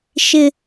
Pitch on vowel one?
high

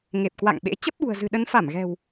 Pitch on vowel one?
low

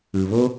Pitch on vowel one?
low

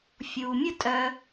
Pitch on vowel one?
low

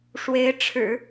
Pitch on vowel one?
rising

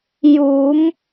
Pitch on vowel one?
rising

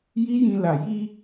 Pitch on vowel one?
high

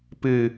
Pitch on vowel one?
high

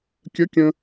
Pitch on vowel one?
rising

